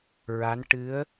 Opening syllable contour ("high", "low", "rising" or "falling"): rising